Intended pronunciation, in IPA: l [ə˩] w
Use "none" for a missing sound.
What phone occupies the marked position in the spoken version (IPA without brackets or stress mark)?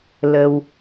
ə˩